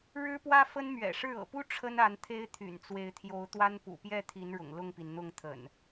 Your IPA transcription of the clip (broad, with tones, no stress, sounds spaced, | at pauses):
ɻ ɻ̩˦ p w ä˦ f ə˦ n m ɥ ɛ̰˨˩ ʂ ɻ̩˥˨ ɤ̰˨˩ p u˦ ʈ͡ʂʰ ə˦ n a˨˦ n t̪ʰ e˦ ɪ̯ t̪ʰ y̰˨˩ n t͡s w e˨˦ ɪ̯ t̪ʰ j o˨˦ ʊ̯ t̪ w a˦ n p ṵ˨˩ p j ɛ˥˨ t̪ʰ i˨˦ n ɻ ʊ̰˨˩ ŋ l ʊ˥˨ ŋ p i˩ n n̪ ʊ˥˨ ŋ t̪ʰ ə̰˨˩ n